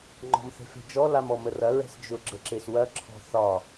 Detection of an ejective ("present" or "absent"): absent